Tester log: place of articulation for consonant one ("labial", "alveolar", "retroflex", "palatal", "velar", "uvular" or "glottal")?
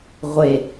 uvular